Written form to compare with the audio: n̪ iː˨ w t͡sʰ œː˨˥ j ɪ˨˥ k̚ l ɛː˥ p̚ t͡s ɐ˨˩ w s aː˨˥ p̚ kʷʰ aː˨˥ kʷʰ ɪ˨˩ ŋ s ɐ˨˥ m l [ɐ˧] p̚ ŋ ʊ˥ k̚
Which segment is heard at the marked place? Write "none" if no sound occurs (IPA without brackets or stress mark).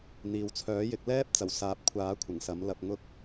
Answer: ɐ˧